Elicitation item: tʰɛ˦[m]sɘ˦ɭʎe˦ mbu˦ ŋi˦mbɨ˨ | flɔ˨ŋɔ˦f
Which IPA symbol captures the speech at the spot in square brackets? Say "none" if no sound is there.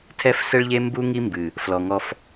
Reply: f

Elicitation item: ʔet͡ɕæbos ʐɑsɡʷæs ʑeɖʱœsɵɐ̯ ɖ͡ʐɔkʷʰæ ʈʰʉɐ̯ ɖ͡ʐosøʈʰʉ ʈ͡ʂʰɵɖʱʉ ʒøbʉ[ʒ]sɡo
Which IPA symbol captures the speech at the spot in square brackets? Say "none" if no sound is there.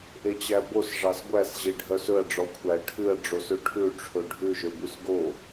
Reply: none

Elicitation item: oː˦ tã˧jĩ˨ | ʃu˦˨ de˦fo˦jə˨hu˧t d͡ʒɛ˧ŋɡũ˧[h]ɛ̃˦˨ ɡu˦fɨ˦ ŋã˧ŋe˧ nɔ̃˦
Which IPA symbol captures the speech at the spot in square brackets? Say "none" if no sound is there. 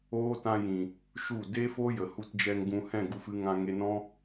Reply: h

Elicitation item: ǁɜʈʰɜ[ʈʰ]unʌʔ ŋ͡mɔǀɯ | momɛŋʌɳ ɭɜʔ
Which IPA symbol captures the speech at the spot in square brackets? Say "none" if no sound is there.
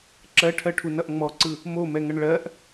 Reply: ʈʰ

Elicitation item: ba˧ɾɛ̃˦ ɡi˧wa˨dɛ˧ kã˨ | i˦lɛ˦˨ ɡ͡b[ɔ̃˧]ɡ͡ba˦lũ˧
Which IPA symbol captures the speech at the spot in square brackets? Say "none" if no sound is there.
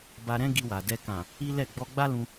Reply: ɔ˧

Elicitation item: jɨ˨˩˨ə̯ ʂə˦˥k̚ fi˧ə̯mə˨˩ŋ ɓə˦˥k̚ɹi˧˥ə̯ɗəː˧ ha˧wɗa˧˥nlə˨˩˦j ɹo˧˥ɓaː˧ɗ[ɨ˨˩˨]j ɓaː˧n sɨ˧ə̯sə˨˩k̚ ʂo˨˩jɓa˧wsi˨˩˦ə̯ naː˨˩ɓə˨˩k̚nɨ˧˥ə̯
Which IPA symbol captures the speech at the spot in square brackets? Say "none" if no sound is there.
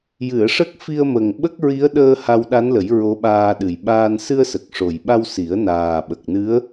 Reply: ɨ˨˩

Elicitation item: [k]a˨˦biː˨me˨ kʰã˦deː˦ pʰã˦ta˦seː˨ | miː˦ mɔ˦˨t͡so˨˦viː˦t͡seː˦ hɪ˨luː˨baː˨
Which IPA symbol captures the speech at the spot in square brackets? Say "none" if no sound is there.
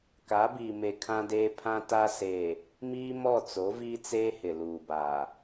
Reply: k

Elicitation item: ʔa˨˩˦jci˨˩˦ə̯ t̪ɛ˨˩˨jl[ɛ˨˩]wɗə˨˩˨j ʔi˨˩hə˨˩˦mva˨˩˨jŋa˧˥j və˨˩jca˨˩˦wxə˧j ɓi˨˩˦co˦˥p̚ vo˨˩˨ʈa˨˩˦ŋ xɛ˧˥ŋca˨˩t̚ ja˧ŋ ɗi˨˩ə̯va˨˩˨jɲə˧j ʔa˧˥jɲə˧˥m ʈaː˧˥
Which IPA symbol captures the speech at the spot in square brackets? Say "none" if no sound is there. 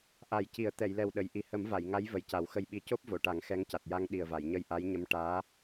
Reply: ɛ˨˩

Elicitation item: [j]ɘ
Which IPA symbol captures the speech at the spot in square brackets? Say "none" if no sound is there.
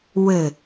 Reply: w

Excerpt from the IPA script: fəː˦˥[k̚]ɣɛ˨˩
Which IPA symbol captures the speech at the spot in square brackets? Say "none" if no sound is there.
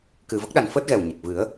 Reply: t̚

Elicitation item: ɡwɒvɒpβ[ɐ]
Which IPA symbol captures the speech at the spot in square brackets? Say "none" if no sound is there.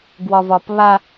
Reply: a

